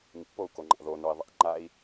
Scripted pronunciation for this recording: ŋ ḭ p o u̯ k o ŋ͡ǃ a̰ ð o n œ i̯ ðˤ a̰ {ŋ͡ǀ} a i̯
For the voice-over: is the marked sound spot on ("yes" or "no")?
no